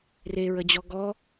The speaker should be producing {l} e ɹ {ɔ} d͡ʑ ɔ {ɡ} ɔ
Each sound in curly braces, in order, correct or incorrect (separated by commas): incorrect, incorrect, correct